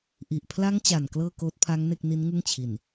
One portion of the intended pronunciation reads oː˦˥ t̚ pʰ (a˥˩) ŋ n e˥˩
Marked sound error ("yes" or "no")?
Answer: yes